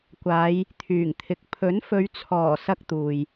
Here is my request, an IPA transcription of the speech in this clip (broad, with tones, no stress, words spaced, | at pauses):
kʷaː˨˧j | t̪ʰyː˨˩ŋt̪ʰɪ˨˥k̚ pʰɵ˨˥nfɵ˨˧ɥt͡sʰɔː˨˩ sɐ˥k̚t̪uː˨j